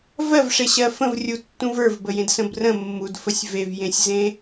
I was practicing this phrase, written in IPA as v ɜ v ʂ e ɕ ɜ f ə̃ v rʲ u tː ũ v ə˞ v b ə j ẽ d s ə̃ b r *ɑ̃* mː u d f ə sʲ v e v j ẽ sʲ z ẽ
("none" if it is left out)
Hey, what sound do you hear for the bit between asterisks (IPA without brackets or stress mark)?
ə̃